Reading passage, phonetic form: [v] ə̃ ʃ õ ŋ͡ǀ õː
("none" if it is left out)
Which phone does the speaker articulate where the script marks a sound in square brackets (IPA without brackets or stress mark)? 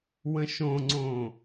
w